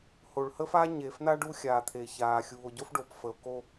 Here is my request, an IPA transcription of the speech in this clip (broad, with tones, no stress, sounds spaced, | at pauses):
h o˨ ɭ h ə˦ f aː˦ ɲ eː˨ f n̪ a˦ ɖ u˦ xʲ aː˨ t̪ʰ e˨ ç aː˨ xʲ uː˨ o̯ ɟ o˦ f ɖ o˨ p f ə˨ o̯ k o˦